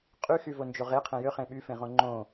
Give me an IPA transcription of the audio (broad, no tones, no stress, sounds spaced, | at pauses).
qʼ y x y v o n d͡ʒ o ʁ e qʰ ẽ j ø χ ẽ ɓ y f ẽ ʁ õ ŋ͡ǃ õ